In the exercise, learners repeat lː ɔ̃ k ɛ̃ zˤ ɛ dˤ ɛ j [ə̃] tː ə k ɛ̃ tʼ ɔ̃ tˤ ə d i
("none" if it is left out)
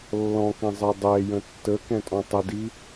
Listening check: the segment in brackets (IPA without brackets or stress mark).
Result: ə̃